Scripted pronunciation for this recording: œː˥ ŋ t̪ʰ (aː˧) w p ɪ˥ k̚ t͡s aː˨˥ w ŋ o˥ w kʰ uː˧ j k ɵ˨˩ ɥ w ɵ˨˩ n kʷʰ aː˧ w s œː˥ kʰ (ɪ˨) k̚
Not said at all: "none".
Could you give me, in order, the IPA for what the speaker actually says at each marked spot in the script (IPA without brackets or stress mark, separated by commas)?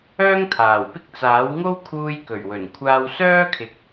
aː˨˩, ɪ˨